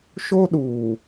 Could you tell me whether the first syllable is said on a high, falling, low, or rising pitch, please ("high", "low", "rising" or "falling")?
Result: high